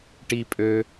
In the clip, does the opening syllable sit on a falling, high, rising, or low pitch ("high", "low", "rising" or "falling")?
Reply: low